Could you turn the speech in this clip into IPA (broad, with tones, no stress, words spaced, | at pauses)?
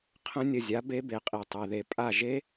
qʰə̃˦˥ nʲə˦˨zʲa˨˥ be˦˥be˨qʼi˨ tˤɛ˨ðe˨ pʼa˦˨ʒe˦˥